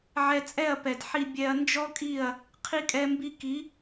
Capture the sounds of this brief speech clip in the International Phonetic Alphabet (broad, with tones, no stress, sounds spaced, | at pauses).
ʕ ɛ˧ t͡sʼ ɛ˦˨ ɐ̯ p ɛ˨ d ħ i˨ bʲ ɛ˨ ɐ̯ n d͡ʒ ɔ˦ kʼ i˦˨ ɐ̯ | qʰ i˧ kʼ ɛ˧ m b i˧ k i˨˦